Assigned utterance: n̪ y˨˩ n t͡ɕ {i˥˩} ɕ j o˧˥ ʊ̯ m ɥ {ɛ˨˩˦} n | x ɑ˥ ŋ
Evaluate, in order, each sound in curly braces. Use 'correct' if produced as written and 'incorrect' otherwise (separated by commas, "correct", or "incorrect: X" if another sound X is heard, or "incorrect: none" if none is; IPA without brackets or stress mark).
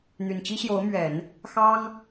incorrect: i˥, correct